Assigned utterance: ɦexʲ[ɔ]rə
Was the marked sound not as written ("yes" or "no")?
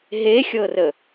yes